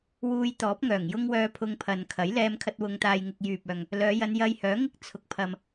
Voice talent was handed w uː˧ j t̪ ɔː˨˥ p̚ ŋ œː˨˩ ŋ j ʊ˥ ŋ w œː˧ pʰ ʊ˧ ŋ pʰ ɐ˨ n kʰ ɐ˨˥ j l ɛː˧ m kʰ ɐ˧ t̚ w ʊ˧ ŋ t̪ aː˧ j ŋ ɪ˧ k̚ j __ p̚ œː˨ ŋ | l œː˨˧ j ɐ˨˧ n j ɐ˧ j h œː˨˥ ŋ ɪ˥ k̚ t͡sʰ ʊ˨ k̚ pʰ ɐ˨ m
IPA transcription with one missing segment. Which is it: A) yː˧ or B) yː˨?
B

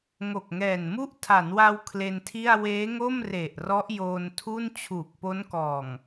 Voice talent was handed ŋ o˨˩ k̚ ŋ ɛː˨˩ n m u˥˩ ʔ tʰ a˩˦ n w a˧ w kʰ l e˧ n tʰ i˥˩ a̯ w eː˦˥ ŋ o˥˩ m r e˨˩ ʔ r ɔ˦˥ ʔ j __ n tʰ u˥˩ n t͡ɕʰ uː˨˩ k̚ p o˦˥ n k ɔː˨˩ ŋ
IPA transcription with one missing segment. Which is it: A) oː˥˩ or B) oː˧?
B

